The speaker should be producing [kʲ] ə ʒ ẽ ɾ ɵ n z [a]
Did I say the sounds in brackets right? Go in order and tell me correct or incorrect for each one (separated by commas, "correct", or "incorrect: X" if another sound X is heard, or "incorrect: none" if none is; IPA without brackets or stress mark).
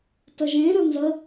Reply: incorrect: t, incorrect: ə